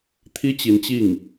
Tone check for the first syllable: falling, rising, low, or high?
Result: high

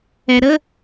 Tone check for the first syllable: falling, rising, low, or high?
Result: low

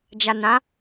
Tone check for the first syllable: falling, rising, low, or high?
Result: low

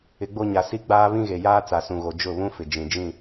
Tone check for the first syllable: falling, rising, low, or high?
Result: rising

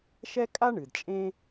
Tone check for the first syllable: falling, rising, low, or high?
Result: high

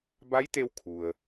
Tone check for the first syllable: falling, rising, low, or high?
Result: rising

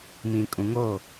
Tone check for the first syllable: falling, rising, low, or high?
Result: low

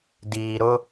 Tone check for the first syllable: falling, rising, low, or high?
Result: low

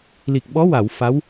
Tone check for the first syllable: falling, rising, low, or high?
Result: low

